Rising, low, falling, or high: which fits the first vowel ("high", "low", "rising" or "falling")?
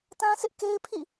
high